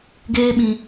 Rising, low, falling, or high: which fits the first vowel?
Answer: high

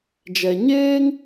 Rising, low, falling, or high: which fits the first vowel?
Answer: low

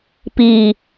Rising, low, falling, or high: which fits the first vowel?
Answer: low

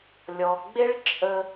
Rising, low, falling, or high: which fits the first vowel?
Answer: low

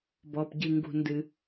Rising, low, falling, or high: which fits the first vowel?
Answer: low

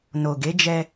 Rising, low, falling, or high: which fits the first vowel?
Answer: low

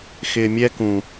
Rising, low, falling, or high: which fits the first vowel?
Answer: low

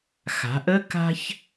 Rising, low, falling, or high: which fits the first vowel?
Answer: rising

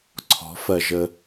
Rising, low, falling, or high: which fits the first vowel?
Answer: rising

